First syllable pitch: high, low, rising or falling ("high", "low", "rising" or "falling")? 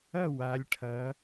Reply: falling